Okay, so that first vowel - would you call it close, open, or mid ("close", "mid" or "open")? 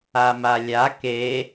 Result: open